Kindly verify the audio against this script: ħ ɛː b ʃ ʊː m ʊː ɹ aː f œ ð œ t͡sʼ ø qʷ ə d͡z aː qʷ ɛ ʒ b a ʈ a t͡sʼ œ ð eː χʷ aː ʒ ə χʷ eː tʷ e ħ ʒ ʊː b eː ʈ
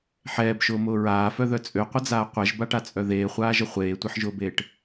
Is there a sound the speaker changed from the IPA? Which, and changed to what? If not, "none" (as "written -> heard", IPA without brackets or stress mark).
none